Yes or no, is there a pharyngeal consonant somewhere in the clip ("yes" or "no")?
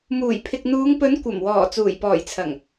no